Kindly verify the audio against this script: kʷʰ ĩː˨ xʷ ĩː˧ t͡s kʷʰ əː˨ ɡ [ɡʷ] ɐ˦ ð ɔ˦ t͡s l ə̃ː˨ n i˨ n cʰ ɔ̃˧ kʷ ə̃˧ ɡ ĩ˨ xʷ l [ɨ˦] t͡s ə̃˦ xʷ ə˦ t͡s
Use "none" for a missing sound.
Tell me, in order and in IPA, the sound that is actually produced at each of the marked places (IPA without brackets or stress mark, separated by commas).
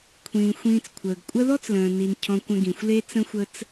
kʷʼ, e˦